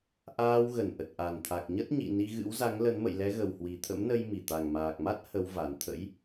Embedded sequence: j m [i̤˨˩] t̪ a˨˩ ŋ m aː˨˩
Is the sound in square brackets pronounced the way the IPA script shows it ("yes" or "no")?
no